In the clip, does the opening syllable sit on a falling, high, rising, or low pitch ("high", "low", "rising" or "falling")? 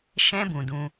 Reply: high